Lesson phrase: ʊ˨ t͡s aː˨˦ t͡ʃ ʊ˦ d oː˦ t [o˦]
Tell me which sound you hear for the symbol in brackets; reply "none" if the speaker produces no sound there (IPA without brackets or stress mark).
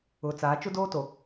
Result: o˨